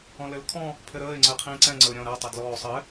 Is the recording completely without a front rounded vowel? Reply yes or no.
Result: yes